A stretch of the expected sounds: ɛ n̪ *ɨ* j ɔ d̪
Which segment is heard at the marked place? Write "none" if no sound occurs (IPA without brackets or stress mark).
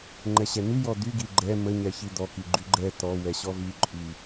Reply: y